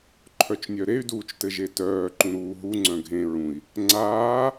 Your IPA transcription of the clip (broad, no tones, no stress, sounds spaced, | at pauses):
ǃʰ œ t͡ʃ nʲ œ ɾ e y̯ d uː t͡ʃ t ɘ ʒ e t œː ǃ ũ ɾ uː ɦ u ŋ͡ǀ œ̃ ɡʱ ẽ ɹ ũ i̯ | ŋ͡ǀ aː